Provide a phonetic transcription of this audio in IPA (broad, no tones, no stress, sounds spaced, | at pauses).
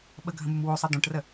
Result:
ɓ ə ɡʱ ə̃ m u m w o sˤ ʌ d̪ õ ʈ r ə